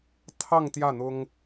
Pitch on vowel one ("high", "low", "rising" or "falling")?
falling